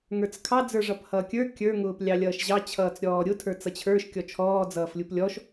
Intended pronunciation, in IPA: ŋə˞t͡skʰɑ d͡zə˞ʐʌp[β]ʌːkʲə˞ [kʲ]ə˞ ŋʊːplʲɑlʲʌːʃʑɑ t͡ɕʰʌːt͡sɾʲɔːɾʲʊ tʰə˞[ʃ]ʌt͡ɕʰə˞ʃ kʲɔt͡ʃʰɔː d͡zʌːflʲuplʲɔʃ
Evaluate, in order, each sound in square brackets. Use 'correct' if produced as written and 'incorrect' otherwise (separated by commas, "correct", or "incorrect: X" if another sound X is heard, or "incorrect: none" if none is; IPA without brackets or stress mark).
incorrect: h, correct, incorrect: t͡s